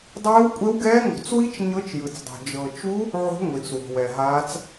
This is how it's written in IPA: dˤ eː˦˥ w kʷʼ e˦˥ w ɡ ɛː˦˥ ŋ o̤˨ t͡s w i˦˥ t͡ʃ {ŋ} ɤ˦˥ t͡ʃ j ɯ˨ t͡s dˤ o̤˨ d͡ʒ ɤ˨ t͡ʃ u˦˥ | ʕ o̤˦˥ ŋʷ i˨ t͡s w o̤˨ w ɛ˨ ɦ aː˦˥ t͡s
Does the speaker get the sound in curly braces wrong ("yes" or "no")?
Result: yes